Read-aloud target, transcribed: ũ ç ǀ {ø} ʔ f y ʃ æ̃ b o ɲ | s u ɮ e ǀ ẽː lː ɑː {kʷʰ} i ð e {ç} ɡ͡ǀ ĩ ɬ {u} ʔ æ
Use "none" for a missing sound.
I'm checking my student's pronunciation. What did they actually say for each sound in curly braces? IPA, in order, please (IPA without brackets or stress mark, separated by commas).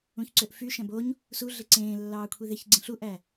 ø, kʷʰ, ç, u